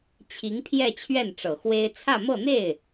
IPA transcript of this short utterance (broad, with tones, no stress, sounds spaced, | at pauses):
t͡ɕʰ i˧˥ ŋ pʰ j ɛ˥˧ t͡ɕʰ ɥ ɛ˥˩ n ʈ͡ʂ ɤ˨˩ x w e˥ ɪ̯ t͡sʰ ä˥˧ m ɤ˥˧ n̪ e˥˩ ɪ̯